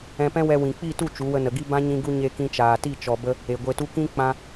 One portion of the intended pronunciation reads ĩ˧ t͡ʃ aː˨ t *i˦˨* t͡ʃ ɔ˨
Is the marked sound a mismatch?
no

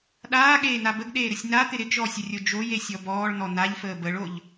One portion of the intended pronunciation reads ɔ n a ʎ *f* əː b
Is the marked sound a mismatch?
no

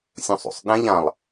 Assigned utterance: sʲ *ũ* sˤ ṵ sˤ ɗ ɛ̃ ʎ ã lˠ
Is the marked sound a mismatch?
no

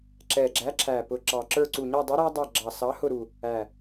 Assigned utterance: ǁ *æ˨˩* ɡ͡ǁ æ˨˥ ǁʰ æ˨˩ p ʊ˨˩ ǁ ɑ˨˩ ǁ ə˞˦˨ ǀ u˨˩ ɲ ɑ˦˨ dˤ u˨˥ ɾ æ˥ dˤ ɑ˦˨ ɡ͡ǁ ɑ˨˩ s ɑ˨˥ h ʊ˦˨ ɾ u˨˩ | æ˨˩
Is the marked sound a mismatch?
yes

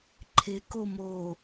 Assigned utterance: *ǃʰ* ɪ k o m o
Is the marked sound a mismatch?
no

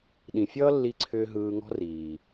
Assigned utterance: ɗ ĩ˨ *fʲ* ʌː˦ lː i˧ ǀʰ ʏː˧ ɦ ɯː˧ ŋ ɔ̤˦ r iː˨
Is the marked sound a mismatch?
no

